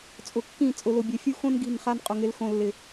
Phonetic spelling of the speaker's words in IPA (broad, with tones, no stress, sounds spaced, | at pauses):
t͡sʼ ʊ˨ kː ĩ˦˨ t͡sʼ ʊ˨ l ʊ˨ bʲ e˨ fʲ u˦ x õ˦ n ɡ i̤˦˨ n χ a˦ n qʼ ʊ˨ ŋ ɪ˨˦ l x õ˨ lː ɪ˨